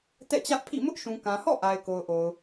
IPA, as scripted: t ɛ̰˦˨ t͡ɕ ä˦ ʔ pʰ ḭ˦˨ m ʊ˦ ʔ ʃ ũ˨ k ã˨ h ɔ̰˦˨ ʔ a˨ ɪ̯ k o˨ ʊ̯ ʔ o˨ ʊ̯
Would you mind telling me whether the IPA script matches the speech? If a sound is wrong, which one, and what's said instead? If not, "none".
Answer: none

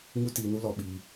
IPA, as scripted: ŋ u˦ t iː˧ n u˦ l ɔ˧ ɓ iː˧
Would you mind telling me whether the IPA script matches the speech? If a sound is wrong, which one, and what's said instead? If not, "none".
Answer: none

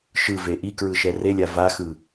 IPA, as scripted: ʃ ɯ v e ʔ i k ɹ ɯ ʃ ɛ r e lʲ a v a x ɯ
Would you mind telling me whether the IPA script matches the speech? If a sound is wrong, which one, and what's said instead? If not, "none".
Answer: none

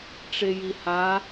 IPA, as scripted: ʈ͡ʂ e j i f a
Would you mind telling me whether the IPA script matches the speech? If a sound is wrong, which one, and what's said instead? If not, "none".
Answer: f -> h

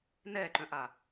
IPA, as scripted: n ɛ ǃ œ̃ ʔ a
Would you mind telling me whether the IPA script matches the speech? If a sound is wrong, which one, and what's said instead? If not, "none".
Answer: none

